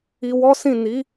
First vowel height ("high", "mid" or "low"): high